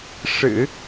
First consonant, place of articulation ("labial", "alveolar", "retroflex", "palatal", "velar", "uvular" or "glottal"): retroflex